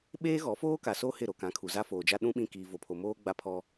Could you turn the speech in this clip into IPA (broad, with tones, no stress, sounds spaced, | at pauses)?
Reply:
ɓ eː˦ ɣ ɔ˨˦ f oː˦ k a˨ s o˦ h ɪ˦˨ ɾ o˨ k ã˨˦ kʰ u˨ z a˦ f oː˨ d͡ʒ a˦ ɗ ũ˦ ɓ ĩ˦˨ k iː˨ v o˨ pʰ o˨ m oː˦ ɡ͡b a˦ pʰ ɔ˦